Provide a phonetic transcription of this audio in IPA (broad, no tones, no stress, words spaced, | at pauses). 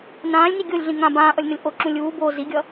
nãːlʲni ɡʲolʲɮĩ ŋã bãːʔʌlʲnʌlʲ ʔoǁũ lʲuː bo ziɡʲʌ